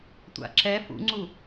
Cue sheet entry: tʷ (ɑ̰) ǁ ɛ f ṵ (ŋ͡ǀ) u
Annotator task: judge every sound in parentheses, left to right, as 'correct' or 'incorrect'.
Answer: incorrect: a̰, correct

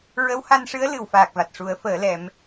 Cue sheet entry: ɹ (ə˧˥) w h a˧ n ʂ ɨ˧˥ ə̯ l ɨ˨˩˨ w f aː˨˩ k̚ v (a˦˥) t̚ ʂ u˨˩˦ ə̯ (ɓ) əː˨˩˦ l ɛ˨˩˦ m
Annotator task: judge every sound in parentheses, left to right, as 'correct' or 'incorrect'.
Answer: correct, incorrect: a˨˩, incorrect: f

